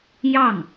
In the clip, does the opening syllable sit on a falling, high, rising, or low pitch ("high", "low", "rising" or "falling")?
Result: falling